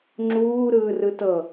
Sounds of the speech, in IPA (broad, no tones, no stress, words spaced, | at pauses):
ŋ͡ǁuː ɾɯːrɯtɤ